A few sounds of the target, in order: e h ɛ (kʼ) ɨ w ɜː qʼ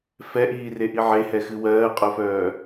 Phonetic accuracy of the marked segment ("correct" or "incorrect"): incorrect